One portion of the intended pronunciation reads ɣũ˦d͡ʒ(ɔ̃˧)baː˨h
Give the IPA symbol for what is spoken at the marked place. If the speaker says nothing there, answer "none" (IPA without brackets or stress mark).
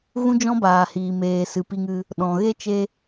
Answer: ɔ̃˦